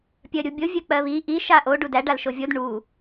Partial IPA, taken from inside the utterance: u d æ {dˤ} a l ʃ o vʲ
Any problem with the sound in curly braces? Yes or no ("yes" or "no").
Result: yes